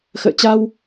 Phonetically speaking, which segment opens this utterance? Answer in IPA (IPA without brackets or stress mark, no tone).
x